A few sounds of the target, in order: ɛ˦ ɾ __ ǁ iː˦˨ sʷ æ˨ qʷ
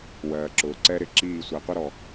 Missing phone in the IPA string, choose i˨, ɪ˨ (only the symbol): ɪ˨